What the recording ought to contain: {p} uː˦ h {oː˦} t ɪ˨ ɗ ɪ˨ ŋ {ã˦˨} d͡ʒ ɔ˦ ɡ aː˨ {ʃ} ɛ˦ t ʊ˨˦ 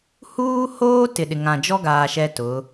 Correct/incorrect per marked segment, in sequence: incorrect, correct, incorrect, correct

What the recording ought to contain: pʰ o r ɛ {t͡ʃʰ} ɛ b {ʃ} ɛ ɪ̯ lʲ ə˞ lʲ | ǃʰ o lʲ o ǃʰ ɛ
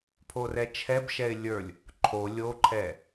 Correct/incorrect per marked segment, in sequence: correct, correct

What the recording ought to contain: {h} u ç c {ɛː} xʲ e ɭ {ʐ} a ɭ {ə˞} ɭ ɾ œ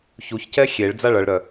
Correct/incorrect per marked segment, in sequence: incorrect, incorrect, incorrect, incorrect

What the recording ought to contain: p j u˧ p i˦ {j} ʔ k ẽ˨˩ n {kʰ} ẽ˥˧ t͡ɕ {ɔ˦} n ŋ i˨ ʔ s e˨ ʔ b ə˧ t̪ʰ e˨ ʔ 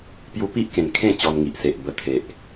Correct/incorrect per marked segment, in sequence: incorrect, correct, incorrect

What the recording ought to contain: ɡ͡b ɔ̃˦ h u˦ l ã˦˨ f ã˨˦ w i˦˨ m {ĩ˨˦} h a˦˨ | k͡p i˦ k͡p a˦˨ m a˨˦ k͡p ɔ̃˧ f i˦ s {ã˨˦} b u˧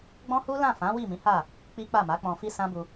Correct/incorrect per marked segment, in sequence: correct, incorrect

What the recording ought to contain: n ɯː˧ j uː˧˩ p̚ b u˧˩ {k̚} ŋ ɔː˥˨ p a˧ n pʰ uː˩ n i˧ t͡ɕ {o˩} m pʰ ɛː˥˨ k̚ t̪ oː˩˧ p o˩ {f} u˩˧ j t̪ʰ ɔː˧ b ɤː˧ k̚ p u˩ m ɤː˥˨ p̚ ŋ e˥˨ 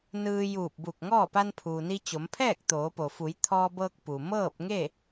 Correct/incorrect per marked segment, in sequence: correct, incorrect, correct

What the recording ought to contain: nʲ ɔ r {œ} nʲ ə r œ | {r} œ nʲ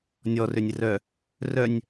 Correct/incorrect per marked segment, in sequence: incorrect, correct

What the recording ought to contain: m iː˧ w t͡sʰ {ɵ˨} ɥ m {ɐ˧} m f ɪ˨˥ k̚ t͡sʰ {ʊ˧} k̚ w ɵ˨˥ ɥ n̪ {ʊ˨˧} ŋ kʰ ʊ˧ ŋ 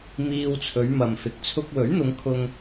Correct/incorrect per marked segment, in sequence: incorrect, incorrect, correct, correct

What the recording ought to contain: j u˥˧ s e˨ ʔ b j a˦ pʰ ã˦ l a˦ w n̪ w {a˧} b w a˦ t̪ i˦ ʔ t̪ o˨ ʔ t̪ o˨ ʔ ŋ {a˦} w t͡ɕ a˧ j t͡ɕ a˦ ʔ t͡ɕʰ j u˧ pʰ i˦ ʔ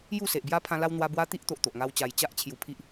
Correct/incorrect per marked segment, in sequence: correct, correct

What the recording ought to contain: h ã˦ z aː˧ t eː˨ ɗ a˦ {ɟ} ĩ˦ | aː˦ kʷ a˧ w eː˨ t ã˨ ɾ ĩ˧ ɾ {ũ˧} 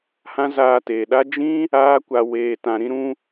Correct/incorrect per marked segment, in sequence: incorrect, correct

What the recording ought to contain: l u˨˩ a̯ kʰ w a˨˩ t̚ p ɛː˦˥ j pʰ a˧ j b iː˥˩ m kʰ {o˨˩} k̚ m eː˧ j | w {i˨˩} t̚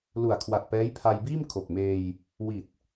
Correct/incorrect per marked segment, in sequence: correct, correct

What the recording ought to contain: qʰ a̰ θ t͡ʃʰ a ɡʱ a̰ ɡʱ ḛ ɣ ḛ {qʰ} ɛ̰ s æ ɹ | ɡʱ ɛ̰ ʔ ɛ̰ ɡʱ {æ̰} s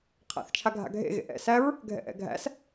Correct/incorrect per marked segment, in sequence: incorrect, correct

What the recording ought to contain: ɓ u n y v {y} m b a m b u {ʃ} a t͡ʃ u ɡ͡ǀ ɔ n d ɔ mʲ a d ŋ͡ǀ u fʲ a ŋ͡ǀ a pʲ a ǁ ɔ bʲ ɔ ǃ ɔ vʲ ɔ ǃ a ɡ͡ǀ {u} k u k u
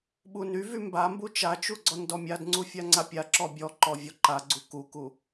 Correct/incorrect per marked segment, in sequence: correct, incorrect, correct

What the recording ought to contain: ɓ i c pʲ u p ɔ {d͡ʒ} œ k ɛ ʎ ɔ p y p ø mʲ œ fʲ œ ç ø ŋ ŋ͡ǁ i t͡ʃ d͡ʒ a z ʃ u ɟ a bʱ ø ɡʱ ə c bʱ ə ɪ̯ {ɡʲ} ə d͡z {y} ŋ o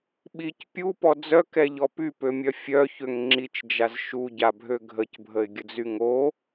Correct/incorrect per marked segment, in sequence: incorrect, correct, correct

